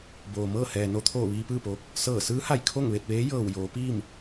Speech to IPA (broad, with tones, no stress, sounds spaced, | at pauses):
b oː˩ m ɤː˥˨ h ɛː˩ n o˧ t̪ʰ oː˧˩ ʋ iː˧ p ɯː˥˨ p oː˧ k̚ | s ɤː˧˩ s ɯː˧˥ h a˧˩ j kʰ o˥˨ ŋ ʋ e˥˨ t̚ ʋ eː˧˥ j ɤː˧˩ w j oː˩˧ p iː˥˨ m